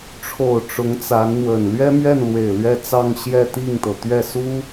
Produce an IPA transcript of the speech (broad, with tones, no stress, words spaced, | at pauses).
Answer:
ʈ͡ʂʰo˨˩ʊ̯ ʈ͡ʂʊ˧˥ŋt͡sa˧˥nn̪wə˨˩n lɥɛ˥mɥɛ˥˩nlwe˨˩ɪ̯ lɥɛ˥˧t͡sɑ˥˧ŋ ɕjɛ˥˧t̪i˥˩ŋt̪ɤ˩ t̪ɥɛ˥˩su˥